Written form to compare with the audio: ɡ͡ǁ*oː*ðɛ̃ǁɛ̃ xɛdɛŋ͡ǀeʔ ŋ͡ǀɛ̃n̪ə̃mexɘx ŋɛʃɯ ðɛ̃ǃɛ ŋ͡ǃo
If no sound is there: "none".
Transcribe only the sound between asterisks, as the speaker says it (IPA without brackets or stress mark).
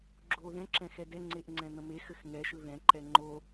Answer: oː